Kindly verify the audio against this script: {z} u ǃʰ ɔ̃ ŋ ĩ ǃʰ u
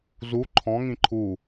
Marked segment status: correct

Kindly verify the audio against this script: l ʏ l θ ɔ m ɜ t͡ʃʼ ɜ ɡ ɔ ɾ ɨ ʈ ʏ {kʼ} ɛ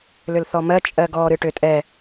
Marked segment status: incorrect: tʼ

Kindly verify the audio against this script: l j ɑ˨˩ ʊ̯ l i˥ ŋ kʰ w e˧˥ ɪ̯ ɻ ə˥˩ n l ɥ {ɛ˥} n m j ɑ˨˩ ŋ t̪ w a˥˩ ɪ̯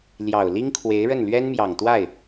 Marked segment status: correct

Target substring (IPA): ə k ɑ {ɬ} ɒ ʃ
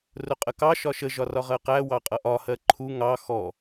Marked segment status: incorrect: ʃ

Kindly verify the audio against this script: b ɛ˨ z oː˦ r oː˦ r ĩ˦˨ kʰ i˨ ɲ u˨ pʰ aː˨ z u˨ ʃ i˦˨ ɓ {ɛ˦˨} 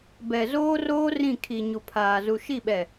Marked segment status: incorrect: ɛ˨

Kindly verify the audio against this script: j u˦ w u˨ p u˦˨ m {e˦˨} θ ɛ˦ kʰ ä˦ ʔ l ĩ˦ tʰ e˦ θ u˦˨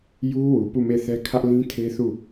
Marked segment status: correct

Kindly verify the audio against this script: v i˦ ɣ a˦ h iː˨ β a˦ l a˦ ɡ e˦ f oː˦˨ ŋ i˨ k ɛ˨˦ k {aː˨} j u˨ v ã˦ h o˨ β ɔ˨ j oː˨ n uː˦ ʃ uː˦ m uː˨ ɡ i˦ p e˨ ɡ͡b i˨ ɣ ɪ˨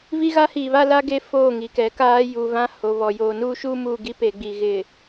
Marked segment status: incorrect: aː˦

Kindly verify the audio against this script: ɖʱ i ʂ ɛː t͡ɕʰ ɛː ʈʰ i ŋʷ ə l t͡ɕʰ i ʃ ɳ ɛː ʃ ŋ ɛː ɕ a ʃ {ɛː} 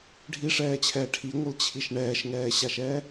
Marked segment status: correct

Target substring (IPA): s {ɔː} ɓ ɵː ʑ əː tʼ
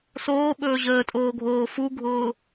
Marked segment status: incorrect: oː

